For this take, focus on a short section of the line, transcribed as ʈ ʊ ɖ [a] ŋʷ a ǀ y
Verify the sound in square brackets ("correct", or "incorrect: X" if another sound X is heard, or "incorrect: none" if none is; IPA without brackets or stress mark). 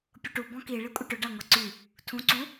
correct